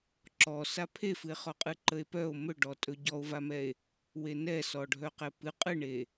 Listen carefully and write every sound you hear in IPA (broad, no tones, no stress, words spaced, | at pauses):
ǁɔsa pʰefɨe̯χɔqʼɨ ǃəe̯pœo̯ mɵɖɔtʼɵ ɟɔo̯vamɛe̯ | wenɛ sɔɖʱœqɛpɨ qʼɨɳe